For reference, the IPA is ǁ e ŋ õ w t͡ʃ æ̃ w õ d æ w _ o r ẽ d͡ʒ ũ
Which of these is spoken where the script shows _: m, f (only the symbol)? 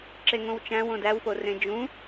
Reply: f